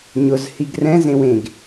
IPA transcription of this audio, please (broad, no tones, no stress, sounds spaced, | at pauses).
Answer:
ɲ ʊ z h i ɡ r ɛ̃ z ẽ w ẽ ɡ